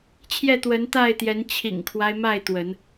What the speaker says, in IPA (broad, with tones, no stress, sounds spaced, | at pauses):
t͡ɕʰ j ɛ˥˨ t̪ w ə˨˦ n t̪ a˥˨ ɪ̯ t̪ j ɛ˨˦ n t͡ɕʰ ḭ˨˩ ŋ kʰ w a˦ ɪ̯ m a˥˨ ɪ̯ t̪ w ə˨˦ n